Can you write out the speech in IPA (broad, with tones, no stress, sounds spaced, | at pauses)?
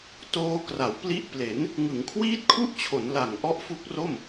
t oː˧ k r a˩˦ w p l i˦˥ ʔ p l e˩˦ n | ŋ ɯ˩˦ ŋ kʰ w iː˦˥ t̚ kʰ u˦˥ ʔ t͡ɕʰ o˩˦ n l a˨˩ ŋ ʔ ɔ˦˥ ʔ f u˦˥ k̚ r o˥˩ m